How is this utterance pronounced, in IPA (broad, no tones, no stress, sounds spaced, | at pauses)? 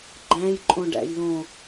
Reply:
ɡ͡ǃ æ̃ j ǃʼ õ ɖ æ̰ j l õ